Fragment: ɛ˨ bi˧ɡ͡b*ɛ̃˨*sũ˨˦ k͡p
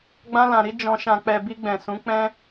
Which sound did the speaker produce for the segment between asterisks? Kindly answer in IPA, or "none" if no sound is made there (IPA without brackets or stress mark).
ɛ̃˨